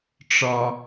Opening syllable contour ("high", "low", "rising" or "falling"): low